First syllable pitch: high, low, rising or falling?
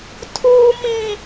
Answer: high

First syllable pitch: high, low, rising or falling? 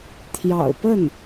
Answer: low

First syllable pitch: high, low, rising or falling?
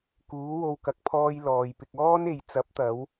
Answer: rising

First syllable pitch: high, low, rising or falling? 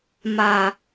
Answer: low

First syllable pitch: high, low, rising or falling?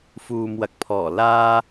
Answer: low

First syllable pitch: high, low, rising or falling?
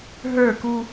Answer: falling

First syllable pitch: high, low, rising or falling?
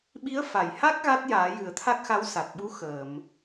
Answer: rising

